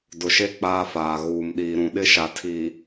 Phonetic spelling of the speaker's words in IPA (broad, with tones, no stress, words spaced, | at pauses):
dʊ˨ʃe˦ k͡paː˦faː˨ ɣuː˨mɗiː˨ ɾũ˨ɗɪ˦˨ʃa˨ tʰi˨